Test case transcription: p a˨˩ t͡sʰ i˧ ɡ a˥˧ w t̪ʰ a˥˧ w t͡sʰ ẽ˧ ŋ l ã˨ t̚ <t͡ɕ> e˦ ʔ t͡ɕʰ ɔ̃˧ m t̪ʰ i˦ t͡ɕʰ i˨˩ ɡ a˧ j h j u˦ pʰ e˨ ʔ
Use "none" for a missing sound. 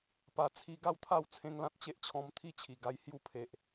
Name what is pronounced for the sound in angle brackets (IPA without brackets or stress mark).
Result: t͡ɕ